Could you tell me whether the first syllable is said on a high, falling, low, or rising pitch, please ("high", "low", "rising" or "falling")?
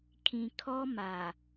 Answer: low